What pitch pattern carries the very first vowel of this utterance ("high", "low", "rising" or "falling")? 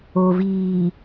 low